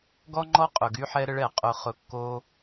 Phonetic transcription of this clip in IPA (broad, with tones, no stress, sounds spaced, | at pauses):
ɡ ɔ˥ ŋ͡ǃ ɔ˥ qʼ ʊ˩ ɡ y˥ ħ ɛ˥ ɾ ə˥ ɭ ɛ˩ qʼ ʊ˧ χ ʊ˧ kː o˥